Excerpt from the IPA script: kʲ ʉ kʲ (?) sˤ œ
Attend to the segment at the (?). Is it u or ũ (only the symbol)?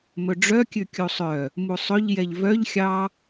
u